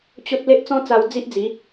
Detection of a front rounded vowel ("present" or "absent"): absent